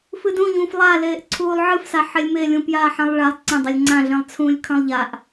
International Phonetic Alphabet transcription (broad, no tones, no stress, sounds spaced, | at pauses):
f ɨ d ũ ʎ ũː f lˠ a l eː ʔ ǀʰ uː lˠ ʕ ɨ f s a ħ e lʲ m e lʲ ũ p j aː ħ ã lˠ ɭ a lˠ ǀ ɐ̃ dˤ ɐ lʲ ŋ͡ǀ ã ɮ ẽ lˠ t͡sʰ ũː lʲ kʰ ɐ̃ lˠ ʎ a ʔ